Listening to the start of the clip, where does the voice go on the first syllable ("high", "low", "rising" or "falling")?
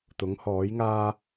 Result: rising